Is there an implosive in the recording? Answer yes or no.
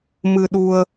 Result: yes